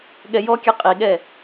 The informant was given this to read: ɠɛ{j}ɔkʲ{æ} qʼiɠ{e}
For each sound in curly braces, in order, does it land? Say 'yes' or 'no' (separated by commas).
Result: yes, no, no